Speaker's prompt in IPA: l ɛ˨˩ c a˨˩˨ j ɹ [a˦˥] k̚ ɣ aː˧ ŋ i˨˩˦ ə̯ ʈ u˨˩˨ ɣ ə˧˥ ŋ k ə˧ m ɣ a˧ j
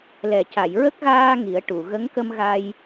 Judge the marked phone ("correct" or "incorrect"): incorrect